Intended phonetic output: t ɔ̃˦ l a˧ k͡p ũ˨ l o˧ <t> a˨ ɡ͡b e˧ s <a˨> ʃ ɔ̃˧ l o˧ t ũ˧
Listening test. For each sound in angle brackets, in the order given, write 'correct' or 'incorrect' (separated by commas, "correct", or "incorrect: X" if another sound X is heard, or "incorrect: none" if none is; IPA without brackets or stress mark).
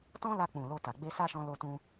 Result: correct, incorrect: a˦